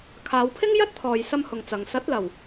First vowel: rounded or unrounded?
unrounded